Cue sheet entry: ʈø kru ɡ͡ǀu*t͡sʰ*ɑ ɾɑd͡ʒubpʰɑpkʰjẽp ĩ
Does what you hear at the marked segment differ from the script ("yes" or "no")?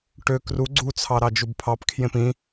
no